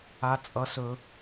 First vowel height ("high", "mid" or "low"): low